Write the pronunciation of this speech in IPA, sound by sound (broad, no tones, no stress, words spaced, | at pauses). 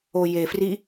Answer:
ojefri